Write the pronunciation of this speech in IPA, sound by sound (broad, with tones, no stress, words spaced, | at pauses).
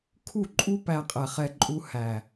kʰu˦˨ǃʼu˦ pæ˧qʼɛ˨χɛ˧ ǃʼu˧ hæ˨